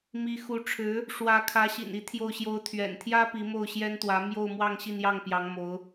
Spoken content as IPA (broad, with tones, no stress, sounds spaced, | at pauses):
m i˧˥ x u˧˥ ʈ͡ʂʰ ɻ̩˧˥ | ʂ w ä˧˥ kʰ ä˧˥ ɕ ḭ˨˩ n i˧˥ t̪ʰ j o˥˩ ʊ̯ ɕ j o˥ ʊ̯ t̪ʰ ɥ ɛ̰˨˩ n t̪ʰ j ä˥ p i˧˥ m o˥˩ ʊ̯ ɕ j ɛ˥ n t̪ w ä˧˥ m j o˥˧ ʊ̯ m w ɑ˥˧ ŋ ɕ i˥˧ n j ɑ˥˩ ŋ p j ɑ˧˥ ŋ m o˧˥ ʊ̯